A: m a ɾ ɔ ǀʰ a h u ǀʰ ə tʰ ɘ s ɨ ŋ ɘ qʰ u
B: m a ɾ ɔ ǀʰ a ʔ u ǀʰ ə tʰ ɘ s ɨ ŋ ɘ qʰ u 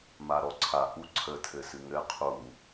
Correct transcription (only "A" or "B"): B